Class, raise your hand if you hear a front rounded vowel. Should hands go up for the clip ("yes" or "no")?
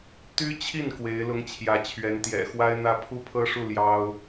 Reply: yes